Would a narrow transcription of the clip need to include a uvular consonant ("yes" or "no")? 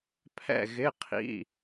yes